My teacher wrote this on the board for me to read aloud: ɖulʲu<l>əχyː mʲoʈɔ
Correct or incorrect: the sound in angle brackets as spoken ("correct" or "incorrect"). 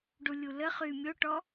correct